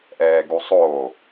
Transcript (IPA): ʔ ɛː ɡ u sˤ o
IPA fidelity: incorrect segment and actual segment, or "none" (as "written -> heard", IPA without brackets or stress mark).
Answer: none